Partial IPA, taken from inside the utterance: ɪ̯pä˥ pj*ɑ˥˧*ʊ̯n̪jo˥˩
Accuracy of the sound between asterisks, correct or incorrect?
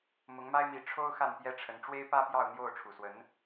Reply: correct